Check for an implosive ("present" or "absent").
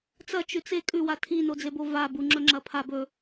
absent